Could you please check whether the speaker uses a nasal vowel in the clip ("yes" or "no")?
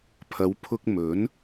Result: no